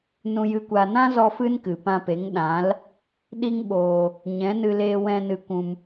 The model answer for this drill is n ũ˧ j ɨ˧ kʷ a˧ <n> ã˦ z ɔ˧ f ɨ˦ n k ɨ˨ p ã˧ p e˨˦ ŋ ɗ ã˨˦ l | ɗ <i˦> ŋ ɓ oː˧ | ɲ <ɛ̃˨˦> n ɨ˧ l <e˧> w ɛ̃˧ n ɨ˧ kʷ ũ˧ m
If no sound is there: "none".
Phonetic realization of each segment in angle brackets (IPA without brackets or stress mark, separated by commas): n, i˦, ɛ̃˨˦, e˧